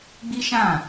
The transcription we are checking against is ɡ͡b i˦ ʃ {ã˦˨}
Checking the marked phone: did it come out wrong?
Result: no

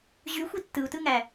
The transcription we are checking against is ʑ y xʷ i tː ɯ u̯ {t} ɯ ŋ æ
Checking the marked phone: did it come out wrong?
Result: no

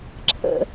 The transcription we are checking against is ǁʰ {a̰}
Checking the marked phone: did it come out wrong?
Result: yes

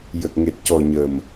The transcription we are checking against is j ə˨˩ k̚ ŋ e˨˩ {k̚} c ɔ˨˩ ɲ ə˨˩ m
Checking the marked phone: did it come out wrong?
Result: yes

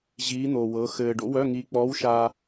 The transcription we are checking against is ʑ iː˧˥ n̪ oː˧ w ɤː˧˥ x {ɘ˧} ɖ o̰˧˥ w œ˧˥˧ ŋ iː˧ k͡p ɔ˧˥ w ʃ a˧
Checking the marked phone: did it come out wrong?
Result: yes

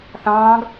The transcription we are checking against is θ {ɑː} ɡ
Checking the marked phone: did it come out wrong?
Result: yes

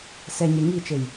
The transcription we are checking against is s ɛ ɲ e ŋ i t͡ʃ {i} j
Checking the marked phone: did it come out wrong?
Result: yes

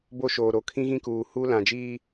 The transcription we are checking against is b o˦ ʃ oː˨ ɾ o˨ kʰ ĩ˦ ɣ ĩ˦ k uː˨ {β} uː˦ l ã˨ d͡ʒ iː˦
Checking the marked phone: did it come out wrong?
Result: yes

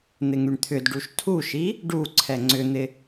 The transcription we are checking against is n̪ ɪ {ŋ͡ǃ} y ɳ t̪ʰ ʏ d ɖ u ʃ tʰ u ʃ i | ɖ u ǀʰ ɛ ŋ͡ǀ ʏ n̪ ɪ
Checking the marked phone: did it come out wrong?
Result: yes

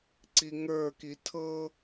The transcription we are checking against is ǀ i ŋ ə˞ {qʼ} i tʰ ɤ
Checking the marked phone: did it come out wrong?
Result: yes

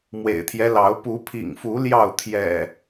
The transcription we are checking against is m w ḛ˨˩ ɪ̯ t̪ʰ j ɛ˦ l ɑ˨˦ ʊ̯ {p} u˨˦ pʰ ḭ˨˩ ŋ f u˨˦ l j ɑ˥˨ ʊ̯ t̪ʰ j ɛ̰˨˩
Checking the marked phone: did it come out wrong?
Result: no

